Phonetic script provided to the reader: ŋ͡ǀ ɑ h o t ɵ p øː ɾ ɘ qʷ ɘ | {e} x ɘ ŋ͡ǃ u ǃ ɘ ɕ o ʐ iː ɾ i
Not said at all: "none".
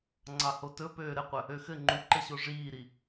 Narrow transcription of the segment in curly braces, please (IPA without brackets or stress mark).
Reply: ø